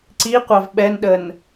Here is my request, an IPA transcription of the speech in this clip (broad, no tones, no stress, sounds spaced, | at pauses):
ǀ i qʷ ɑ v ɓ ɛ n ɗ ə n